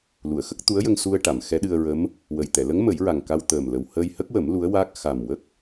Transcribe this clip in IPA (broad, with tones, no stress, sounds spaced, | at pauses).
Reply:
l u˨˩˨ ə̯ x ə˦˥ k̚ t̪ u˧˥ ə̯ j ə˧ ŋ s u˧ ə̯ ʈ a˨˩˨ m x ɛ˧˥ ɗ ɨ˧ ə̯ ɹ ə˧˥ m | w ə˨˩ j t̪ ɛ˨˩˨ l ə˧˥ ŋ m ə˨˩˦ j ɹ a˨˩ ŋ k a˧ w t̪ əː˨˩ m l ə˨˩ w h əː˧ j h ə˦˥ k̚ w ə˨˩˦ m l u˧˥ ə̯ w aː˦˥ k̚ x a˨˩ m w ə˦˥ k̚